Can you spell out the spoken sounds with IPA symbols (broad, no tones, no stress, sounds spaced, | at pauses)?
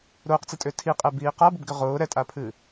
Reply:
ɾ ʊː q t͡s ɨ tʼ ʏː tʰ i qʼ ɛ b iː q a b ʊ b ɡ ʏ ʁ ʊː ɾ ɛ tʼ a pʰ ɨː